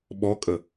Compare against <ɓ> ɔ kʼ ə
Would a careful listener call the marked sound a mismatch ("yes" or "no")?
no